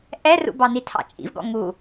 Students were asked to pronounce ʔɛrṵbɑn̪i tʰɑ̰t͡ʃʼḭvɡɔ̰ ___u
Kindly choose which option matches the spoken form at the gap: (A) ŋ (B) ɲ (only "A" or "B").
A